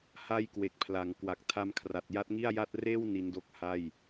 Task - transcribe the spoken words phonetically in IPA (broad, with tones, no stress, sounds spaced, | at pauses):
h a˥˩ j k w e˨˩ k̚ pʰ l a˩˦ ŋ k w a˨˩ k̚ tʰ a˦˥ m kʰ r a˨˩ t̚ j a˦˥ t̚ ŋ i˥˩ a̯ j a˥˩ t̚ r eː˥˩ w n i˦˥ n d o˦˥ k̚ h a˥˩ j